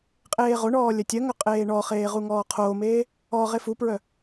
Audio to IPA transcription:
qʼeːʁoɳɔː lʲɜtʲɜŋœ qʼeːɳɔχeː ʁuŋɔːqʰoːmeː | ɔ ʁefupɹœ

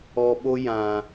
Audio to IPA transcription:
ɔ˨ɓo˧ jã˨

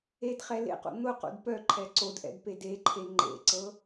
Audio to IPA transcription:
edχɛ lḛqṵ n̪ʊqṵd pœǃʰɛ ǀodʔɛ̰d pedeǃʰe ŋ͡ǃḛǀɤ

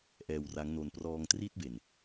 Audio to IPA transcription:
ʔɛː˧wra˦˥ŋno˧n prɔː˧ŋtriː˥˩t̚be˨˩n

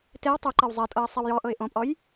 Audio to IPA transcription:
tew tˤoǃɜw zˤɜtʼɤə̯sˤew jɔʔɤɪ̯ ʔõpʼɔj

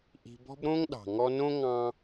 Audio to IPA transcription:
ʔi̤˧bɔ̤˦b ɾõ˦ŋɗɑ̤˨ŋɔ˧nõ˦ ŋɑ̃˦

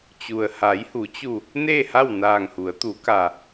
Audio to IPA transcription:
t͡ɕu˩ə̯ ha˩˧jhu˩˧t͡ɕu˧˩ | neː˥˨ha˥˨wnaː˧˩ŋhu˩˧ə̯ t̪u˩˧ka˩

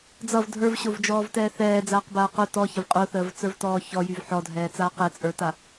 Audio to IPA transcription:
d͡zʌv dʱə˞vɕovd͡ʒɔːvtɛː θɛːd͡zaːqbaː qo tɔçəv qʼoθəːvt͡sə˞vtɔː çɔjyv ħɔdʱɛːt͡saːq ɛt͡sʼə˞ta

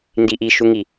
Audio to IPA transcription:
ndiʔiʃuŋi

